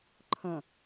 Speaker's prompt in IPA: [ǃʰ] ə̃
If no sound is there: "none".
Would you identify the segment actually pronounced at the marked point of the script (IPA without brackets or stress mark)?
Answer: ǃʰ